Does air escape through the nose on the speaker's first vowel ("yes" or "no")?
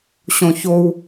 yes